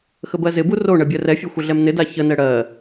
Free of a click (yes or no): yes